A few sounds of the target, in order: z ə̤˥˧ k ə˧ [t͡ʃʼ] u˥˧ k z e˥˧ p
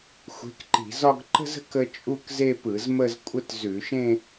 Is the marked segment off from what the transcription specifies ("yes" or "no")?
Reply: no